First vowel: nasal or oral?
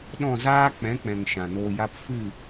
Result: nasal